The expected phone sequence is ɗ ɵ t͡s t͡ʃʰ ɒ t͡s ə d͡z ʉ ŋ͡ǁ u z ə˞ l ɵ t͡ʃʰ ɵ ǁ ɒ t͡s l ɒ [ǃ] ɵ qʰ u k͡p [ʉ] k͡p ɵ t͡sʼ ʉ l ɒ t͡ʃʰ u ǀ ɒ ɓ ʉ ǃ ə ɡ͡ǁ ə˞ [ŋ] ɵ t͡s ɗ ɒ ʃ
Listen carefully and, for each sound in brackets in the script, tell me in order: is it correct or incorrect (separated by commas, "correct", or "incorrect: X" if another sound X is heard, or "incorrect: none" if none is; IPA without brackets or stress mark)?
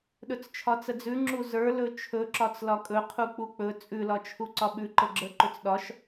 incorrect: kʼ, incorrect: u, incorrect: ǃ